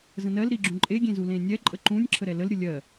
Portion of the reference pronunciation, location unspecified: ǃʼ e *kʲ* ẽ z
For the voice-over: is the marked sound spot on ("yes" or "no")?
no